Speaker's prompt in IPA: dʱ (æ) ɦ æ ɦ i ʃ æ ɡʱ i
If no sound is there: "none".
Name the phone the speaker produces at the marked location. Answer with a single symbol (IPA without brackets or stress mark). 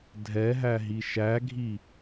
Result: ɛ